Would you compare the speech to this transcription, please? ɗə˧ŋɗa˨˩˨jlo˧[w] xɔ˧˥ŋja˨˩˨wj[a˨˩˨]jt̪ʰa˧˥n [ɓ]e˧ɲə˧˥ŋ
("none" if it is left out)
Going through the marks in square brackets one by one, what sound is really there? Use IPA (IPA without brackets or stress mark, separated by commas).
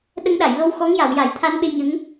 w, a˨˩˨, ɓ